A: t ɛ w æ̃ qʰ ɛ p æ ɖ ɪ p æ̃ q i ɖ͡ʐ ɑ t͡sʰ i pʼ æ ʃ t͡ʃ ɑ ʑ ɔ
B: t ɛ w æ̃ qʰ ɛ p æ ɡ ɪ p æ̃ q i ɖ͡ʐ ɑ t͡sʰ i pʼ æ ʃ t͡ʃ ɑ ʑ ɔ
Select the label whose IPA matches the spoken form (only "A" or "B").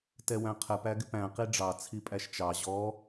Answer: B